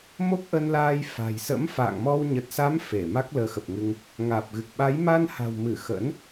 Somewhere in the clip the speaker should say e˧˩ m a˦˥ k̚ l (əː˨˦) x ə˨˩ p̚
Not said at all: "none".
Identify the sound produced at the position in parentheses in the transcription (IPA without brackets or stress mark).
əː˨˦